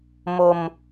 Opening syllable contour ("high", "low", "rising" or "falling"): low